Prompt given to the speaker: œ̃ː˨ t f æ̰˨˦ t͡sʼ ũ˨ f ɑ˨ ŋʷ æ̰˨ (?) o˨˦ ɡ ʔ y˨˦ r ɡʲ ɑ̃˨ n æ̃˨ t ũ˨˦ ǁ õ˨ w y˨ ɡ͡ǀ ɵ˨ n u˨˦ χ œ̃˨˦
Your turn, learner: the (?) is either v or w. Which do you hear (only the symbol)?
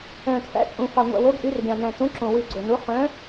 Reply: w